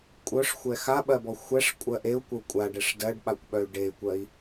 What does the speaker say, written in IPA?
kʷʼ œ ʂ xʷ ɛ x a ɓ ɜ b ɔ xʷ ɛ ʂ kʷʼ ɜ ʔ e u̯ kʷ ə u̯ kʷʼ a ɖ ɛ ʂ d ɜ ɖ ɓ a kʷ ɓ œ y̯ ɖ e y̯ kʷ ɜ i̯

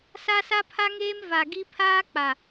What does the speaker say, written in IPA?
s a˦ s a˦ pʰ a˦ ŋ eː˦ m v a˨ ɡ i˦ pʰ aː˦ k͡p a˨

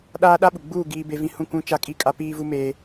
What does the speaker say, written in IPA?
ɗ aː˦ ɗ a˦ ɓ u˨ ɡ͡b uː˦˨ ɡ iː˦ b e˦ v ĩ˦ h ũ˦˨ kʷ ũ˦ t͡ʃ a˦ kʼ i˦˨ kʼ a˦ p iː˦ v u˦ m eː˦

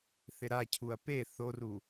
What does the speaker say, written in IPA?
θ ɪ ɾ a cʰ u ɐ̯ p e θ o r u

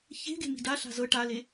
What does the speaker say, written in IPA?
ç e̤ ɡ e̤ m i̤ d a ɬ a̤ z ɤ ʈ a l e

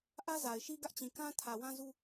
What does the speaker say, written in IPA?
ʔ ä˦ z a˨ ɪ̯ ʃ i˦ ɡ ä˦ ʔ t͡ɕ ĩ˨ k ã˦ tʰ ä˨ w ã˦ z u˦

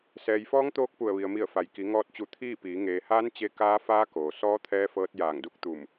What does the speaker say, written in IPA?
s ɛː˩ j f ɔː˧˥ ŋ t̪ oː˧ k̚ p u˧˩ ə̯ ʋ i˩ ə̯ m i˧˩ ə̯ f a˩ j k i˩˧ ŋ ɔː˧ t̚ t͡ɕ u˧˩ t̪ʰ iː˥˨ p iː˩˧ ŋ eː˩ h aː˧˥ n t͡ɕ e˧˥ k aː˧˥ f aː˧˥ k oː˩ s ɔː˧˥ t̪ʰ ɛː˧ f ɤː˧ t̚ j aː˧˩ ŋ d u˥˨ k̚ t̪ u˧˩ m

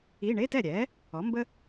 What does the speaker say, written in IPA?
i˧˥˧ ɳ e˧˥˧ t ɛ˥˩ ɾʲ ɛ˩˥ | ɔ˩˥ m b ə˥

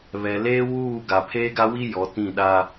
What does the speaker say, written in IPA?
β ɛ˨ l eː˦ w uː˦˨ ɡ a˨ pʰ eː˦ ɡ a˦ w i˦ j ɔ˨˦ t ĩ˦˨ ɗ a˦

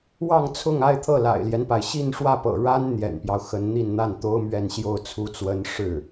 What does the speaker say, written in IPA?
w ɑ˥˧ ŋ t͡sʰ ʊ˥˧ ŋ a˥˧ ɪ̯ t̪ʰ ɤ˥˩ l a̰˨˩ ɪ̯ l j ɛ˦ n p a˩ ɪ̯ ɕ i˥˧ n ʂ w ä˥˩ p ɤ̰˨˩ ɻ a˥ n n̪ j ɛ̰˨˩ n p j ɑ˦ ʊ̯ x ə˧˥ n n̪ i˥˧ n n̪ a˥˩ n t̪ o˥ ʊ̯ m ɥ ɛ˥˧ n ɕ j o˥˩ ʊ̯ t͡sʰ u˥ t͡s w ə˥ n ʂ ɻ̩˥˩

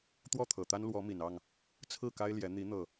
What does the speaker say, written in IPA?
t̪ w ɔ˥˨ t̪ʰ ɤ˨˩ t̪ a˦ n l w ɔ˨˦ m i˨˩ n ɑ˥˨ ŋ | t͡sʰ ɹ̩˥˨ k a˦ ɪ̯ l j ɛ˨˦ n̪ i˨˦ n̪ ɤ˨˩

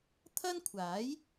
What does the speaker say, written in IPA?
t̪ʰ ɐ˥ n kʷʰ aː˨˥ j

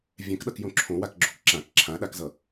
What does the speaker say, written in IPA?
vʲ ɛ̃ k ɗ ʌ k j õ ǁʰ õ w a k ɡ͡ǁ o k ǁ ã k ǁʰ ã ɗ a k z ʌ

